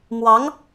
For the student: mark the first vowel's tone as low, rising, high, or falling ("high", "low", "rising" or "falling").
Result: rising